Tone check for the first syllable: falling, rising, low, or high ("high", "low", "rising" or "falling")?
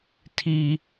high